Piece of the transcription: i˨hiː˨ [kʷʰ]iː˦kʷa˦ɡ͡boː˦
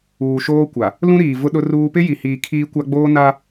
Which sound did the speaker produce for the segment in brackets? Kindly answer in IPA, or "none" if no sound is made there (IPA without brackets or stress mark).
kʰ